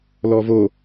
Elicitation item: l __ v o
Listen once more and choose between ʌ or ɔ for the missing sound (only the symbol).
ɔ